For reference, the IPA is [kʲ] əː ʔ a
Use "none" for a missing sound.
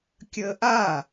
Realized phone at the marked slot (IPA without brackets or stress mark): kʲ